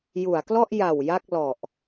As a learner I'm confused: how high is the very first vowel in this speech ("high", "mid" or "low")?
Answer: high